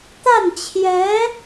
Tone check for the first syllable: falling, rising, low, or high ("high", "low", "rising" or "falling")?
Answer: falling